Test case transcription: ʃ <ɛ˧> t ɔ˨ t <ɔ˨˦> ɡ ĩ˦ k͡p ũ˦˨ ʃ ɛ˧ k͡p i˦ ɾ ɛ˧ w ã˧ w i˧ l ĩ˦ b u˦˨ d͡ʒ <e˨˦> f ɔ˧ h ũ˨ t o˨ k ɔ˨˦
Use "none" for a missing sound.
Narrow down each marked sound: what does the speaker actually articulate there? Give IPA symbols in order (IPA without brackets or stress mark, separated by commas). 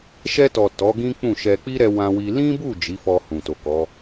ɛ˧, ɔ˨˦, i˨˦